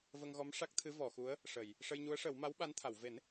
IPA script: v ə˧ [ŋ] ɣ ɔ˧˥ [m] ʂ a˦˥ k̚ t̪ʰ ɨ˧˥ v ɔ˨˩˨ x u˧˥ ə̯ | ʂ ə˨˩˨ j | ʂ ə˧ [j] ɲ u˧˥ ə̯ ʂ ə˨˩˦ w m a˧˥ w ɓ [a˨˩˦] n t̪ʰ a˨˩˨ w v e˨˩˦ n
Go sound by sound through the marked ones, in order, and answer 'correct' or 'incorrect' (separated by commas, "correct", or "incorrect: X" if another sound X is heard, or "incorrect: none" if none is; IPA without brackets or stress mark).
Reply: correct, correct, correct, incorrect: a˧˥